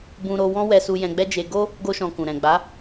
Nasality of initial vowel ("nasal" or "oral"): nasal